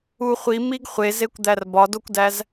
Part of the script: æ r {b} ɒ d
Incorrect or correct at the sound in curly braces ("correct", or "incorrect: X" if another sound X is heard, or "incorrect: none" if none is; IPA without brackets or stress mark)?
correct